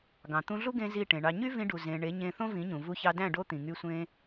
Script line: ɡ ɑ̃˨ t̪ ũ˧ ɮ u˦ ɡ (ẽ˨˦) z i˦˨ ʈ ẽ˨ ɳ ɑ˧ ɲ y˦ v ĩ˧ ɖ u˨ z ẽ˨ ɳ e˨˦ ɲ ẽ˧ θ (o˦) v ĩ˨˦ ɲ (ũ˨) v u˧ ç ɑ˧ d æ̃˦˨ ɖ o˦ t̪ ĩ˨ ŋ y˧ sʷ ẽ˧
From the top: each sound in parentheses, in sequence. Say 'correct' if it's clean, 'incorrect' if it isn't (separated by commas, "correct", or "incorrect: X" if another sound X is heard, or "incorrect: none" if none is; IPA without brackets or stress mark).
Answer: incorrect: ẽ˧, incorrect: õ˦, correct